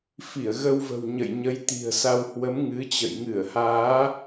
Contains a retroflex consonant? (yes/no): no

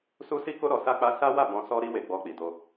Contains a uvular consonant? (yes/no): no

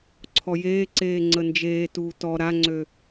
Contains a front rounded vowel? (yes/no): yes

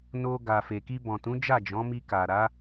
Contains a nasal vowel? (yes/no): yes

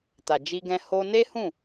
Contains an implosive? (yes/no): no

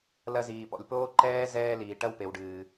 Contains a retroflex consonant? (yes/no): yes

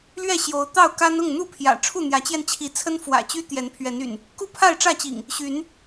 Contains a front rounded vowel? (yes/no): yes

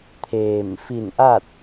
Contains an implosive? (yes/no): no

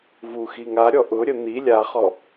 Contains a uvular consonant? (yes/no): yes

